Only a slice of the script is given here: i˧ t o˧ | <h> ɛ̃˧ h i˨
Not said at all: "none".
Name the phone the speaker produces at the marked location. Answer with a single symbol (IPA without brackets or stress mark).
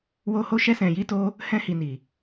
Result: h